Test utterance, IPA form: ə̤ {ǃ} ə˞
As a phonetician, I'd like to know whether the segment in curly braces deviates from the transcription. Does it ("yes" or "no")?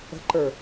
no